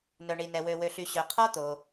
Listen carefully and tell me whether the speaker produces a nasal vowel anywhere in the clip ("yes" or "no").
no